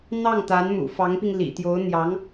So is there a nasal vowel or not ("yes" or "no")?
no